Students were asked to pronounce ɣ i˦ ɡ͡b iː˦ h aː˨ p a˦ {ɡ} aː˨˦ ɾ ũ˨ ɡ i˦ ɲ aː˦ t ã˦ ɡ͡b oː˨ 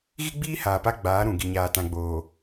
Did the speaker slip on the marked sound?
yes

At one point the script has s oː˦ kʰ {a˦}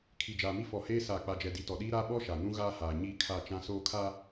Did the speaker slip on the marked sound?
no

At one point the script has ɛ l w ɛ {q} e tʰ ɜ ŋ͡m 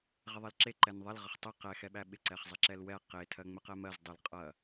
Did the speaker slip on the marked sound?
no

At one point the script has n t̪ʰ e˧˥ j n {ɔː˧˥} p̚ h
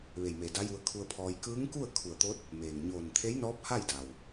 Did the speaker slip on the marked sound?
no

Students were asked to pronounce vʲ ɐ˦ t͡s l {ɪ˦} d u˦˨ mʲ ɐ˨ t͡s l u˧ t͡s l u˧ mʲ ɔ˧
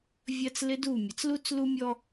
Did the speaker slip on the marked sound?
no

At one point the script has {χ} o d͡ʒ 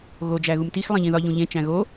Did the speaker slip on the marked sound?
yes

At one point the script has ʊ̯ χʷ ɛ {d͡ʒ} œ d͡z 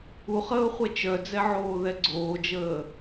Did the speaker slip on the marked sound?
yes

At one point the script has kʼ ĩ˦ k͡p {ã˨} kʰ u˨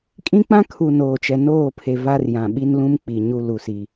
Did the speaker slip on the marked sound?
yes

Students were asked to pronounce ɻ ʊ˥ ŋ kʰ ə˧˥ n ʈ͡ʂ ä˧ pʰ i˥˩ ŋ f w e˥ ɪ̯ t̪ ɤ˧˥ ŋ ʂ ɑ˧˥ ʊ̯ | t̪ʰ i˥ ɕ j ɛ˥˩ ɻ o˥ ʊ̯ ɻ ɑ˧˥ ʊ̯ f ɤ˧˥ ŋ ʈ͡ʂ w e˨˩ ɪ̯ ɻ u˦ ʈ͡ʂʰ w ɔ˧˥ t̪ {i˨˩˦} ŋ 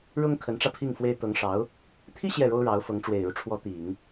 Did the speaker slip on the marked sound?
no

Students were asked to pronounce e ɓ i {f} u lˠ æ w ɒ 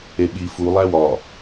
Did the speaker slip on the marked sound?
no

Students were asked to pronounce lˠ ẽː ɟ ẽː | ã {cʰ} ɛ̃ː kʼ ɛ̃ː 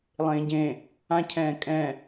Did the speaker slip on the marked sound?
no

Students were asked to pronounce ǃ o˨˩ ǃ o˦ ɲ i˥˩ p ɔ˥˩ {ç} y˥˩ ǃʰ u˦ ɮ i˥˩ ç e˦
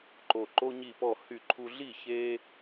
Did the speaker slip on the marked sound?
yes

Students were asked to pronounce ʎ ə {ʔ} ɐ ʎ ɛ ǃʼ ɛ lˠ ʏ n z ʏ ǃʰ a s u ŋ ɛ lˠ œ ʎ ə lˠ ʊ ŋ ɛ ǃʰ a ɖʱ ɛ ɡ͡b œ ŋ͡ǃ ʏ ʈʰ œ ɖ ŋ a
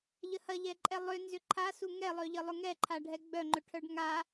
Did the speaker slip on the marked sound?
yes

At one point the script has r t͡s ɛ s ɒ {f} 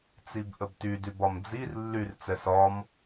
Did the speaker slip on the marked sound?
yes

